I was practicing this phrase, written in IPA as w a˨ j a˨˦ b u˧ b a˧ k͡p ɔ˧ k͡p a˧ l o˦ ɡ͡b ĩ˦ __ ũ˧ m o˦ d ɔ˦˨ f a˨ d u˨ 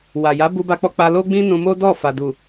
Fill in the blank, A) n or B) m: A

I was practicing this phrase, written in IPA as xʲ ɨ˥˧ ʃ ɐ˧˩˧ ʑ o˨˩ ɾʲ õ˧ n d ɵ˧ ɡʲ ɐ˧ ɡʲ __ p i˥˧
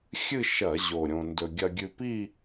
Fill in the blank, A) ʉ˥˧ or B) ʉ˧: B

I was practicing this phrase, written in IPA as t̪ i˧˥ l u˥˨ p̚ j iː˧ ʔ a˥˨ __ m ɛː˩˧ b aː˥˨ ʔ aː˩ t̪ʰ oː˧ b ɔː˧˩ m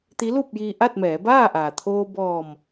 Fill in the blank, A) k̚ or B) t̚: B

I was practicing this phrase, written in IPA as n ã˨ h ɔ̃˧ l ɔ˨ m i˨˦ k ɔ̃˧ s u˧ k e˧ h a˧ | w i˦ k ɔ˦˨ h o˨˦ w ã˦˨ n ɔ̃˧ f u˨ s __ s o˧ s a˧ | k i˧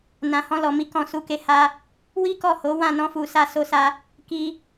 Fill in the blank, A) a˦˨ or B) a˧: B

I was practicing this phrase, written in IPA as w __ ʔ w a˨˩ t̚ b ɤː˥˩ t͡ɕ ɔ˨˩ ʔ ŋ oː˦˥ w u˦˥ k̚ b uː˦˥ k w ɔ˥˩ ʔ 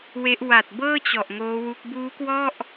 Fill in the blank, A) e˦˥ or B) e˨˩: A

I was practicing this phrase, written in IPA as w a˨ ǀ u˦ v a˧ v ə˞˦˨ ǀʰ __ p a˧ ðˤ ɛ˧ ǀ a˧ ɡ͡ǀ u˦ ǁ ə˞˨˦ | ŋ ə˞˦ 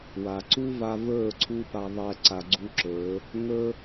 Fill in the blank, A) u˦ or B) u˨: A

